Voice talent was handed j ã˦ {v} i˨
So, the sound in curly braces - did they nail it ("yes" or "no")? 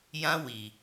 no